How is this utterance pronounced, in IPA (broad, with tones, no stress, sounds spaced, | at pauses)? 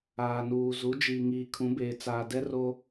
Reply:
aː˨ n uː˨ z u˨˦ d͡ʒ iː˨ ŋ iː˨ kʰ ũ˨˦ b eː˨ t͡s aː˨ d ɛ˦ r o˦